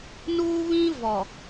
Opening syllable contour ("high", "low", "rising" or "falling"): high